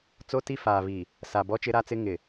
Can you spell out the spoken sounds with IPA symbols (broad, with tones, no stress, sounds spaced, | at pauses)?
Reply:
t͡s o˦ t i˦ f aː˨ β i˨ | s a˨ b ɔ˦ t͡ʃ ɪ˦ ɾ a˦ t͡s ɪ˦ ŋ ɪ˨